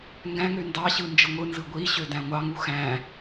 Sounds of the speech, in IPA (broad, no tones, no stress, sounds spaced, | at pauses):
ŋ ɡ æ̃ ŋ ø n d ɑ ɕ ɯ n d͡ʒ ɯ ŋʷ ɯ n z ɯ ɡʷ i ɕ ø d æ̃ ŋʷ ɑ ŋ u x æ̃